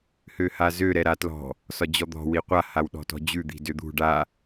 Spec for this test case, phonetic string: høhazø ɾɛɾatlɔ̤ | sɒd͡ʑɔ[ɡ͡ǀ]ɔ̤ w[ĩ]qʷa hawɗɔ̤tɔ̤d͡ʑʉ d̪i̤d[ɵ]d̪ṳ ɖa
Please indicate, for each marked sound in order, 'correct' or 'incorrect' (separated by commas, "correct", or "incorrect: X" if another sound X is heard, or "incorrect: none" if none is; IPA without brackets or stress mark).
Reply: incorrect: d̪, incorrect: i, incorrect: ø